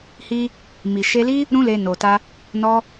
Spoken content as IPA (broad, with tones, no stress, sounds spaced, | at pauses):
h i˧ | m i˨ ʃ e˧ l i˦ | ɾ ũ˦ l e˧ n o˨ t a˧ | n ɔ˧